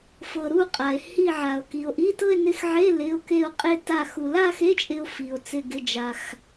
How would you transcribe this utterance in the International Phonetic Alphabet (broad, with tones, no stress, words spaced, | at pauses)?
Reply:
fɤ˧ɾu˥˧ qʼa˧e̯ hi˥˧ʕa˧o̯ki˧o̯ ʔi˧˥˧tɤ˥˧e̯nɪ˧˥˧xʕe˧˥˧ lɪ˧˥˧o̯ke˥˧o̯qʼe˥˧ta˥˧ xu˧ la˥˧xe˧˥˧t͡ʃʼɪ˧o̯ fi˧o̯t͡sɪ˥˧ ɡɪ˧˥˧d͡ʒa˧x